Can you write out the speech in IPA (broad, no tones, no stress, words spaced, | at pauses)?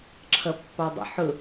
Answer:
ǁʰʌpːɑdˤə̰ ħʊ